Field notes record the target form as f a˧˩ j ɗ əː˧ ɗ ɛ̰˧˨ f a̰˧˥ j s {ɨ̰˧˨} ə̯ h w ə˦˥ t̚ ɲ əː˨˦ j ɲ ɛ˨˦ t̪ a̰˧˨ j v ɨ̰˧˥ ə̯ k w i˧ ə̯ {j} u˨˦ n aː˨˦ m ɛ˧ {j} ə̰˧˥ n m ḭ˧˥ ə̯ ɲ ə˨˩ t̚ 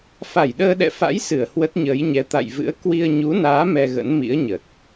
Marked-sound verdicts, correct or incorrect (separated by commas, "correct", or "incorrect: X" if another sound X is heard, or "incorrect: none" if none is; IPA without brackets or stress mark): incorrect: ɨ˧˩, incorrect: ɲ, incorrect: ɣ